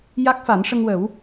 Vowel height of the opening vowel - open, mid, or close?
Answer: open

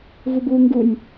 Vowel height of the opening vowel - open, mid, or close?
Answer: close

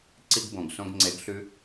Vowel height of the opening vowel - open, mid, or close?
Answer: close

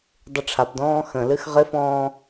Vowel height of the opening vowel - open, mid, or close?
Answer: close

